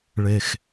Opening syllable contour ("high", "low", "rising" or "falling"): low